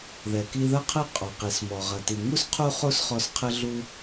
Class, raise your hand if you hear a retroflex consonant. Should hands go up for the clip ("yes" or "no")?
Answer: no